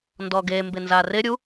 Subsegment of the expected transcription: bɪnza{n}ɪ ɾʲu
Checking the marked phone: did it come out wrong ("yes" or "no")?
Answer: yes